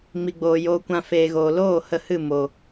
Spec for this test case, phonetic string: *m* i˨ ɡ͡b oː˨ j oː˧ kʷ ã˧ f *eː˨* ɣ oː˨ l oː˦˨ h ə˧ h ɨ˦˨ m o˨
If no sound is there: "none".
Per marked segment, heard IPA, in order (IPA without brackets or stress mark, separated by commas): m, eː˨